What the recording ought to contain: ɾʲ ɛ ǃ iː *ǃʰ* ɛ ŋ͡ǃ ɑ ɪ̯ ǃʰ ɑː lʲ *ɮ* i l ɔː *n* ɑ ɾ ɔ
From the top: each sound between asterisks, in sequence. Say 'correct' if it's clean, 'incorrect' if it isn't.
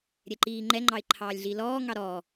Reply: incorrect: ŋ͡ǃ, correct, incorrect: ŋ

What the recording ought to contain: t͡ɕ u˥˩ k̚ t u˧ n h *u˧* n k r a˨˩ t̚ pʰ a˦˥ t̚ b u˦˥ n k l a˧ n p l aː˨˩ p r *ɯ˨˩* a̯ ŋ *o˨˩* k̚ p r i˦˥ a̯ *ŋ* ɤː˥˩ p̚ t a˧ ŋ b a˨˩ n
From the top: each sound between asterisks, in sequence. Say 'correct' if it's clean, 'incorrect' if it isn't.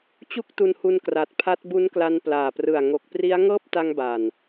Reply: correct, correct, correct, correct

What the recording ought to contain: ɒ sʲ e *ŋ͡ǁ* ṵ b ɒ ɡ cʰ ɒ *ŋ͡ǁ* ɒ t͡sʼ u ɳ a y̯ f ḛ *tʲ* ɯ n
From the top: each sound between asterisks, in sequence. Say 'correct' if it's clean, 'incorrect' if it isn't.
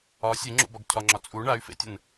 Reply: correct, correct, correct

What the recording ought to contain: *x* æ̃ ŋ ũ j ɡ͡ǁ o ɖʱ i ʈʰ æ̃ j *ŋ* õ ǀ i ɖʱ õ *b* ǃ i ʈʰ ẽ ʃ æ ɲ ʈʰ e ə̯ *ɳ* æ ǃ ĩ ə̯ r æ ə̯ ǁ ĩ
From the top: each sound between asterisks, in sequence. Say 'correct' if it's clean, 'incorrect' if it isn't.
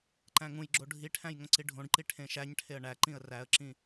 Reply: incorrect: ǃ, correct, incorrect: ɖ, correct

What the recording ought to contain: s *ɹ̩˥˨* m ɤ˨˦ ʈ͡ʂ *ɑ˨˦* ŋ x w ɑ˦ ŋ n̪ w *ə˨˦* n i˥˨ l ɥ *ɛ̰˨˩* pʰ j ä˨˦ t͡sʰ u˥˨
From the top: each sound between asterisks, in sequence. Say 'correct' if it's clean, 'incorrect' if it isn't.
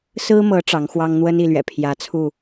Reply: incorrect: ɹ̩˦, correct, incorrect: ə˦, correct

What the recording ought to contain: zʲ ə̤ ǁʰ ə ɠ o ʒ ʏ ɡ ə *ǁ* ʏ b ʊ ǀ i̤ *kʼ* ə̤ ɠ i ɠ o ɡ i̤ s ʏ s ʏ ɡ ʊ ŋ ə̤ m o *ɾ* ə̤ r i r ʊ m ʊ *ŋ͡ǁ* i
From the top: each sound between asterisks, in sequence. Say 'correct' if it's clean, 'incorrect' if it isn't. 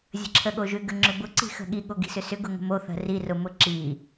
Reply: incorrect: ŋ͡ǁ, incorrect: x, incorrect: θ, incorrect: ǁ

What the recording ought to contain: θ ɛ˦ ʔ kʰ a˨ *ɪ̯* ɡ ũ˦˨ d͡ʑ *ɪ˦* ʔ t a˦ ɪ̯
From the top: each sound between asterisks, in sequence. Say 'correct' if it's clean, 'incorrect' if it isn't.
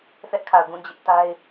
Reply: incorrect: ʊ̯, correct

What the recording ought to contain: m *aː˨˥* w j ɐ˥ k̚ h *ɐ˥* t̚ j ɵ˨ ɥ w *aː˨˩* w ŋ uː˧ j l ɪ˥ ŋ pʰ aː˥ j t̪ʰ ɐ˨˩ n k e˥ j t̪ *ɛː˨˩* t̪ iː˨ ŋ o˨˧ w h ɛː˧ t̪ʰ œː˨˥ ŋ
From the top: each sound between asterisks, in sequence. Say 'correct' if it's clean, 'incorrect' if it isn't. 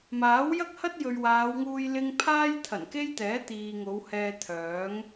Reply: correct, correct, incorrect: aː˨˧, incorrect: ɛː˨˥

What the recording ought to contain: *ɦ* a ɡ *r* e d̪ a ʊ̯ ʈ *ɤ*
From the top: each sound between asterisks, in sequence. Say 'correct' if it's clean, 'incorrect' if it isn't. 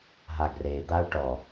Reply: correct, correct, incorrect: ɔ

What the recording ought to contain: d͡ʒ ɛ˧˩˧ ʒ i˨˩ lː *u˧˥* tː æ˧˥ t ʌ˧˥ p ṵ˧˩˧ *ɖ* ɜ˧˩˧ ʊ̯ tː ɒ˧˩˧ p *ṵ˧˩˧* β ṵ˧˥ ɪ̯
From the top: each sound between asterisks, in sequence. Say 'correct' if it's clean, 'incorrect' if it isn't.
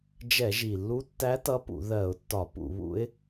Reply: correct, incorrect: ð, correct

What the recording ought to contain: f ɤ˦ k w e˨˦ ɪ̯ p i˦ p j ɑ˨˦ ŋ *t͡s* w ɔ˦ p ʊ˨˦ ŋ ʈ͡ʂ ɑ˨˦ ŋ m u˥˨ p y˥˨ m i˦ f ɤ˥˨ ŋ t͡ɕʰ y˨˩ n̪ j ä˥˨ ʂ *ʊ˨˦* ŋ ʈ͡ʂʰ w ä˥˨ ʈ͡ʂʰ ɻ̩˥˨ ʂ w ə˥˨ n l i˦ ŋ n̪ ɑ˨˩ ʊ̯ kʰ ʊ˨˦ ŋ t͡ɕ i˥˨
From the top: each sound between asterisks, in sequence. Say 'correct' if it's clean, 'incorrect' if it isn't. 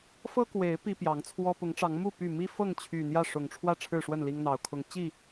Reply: incorrect: t͡sʰ, incorrect: ʊ˨˩

